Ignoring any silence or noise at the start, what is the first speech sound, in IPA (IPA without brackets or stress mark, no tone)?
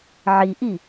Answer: ʕ